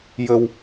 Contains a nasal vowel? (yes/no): no